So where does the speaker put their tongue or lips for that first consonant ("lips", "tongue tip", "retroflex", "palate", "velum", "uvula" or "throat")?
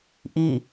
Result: throat